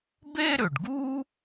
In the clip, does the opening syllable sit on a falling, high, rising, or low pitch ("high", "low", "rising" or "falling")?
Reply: high